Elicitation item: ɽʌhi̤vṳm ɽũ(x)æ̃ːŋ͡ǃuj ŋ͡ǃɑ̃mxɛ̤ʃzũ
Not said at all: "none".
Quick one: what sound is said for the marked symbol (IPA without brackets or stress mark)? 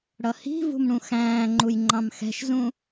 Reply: x